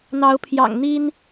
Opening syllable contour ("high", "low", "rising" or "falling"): rising